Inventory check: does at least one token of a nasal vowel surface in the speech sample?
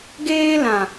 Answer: yes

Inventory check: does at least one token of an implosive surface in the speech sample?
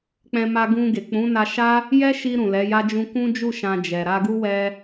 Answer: no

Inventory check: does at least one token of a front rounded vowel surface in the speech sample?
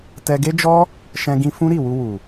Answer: no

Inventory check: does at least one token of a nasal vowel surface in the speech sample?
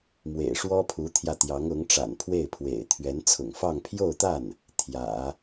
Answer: no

